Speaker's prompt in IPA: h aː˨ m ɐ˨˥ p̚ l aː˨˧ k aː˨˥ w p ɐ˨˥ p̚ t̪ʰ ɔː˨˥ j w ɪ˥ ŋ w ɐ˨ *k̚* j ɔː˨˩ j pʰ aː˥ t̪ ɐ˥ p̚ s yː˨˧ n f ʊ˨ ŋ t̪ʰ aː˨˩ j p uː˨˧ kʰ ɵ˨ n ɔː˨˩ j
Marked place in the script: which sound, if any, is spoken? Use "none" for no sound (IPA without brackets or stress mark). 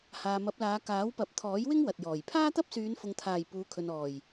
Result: t̚